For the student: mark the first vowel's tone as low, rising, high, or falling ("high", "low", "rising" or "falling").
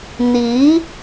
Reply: rising